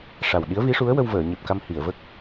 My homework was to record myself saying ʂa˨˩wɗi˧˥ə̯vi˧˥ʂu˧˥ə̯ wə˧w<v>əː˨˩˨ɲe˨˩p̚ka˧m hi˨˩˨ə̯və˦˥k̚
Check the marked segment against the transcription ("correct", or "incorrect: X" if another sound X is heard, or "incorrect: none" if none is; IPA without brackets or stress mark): correct